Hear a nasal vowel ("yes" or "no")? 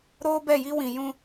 yes